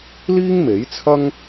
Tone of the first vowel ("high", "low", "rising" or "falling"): high